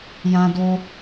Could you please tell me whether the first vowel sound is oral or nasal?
nasal